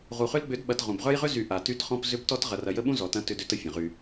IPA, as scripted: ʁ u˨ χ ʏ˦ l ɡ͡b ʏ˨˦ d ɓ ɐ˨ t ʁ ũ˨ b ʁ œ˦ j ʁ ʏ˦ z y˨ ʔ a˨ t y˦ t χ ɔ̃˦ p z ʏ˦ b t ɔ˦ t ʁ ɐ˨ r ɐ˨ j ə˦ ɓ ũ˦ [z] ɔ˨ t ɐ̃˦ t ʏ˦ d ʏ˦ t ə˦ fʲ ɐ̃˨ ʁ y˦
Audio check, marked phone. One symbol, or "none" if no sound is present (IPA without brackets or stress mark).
z